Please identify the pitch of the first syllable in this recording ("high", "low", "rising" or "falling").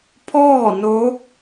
falling